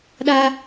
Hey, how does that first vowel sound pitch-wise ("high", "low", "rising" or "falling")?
high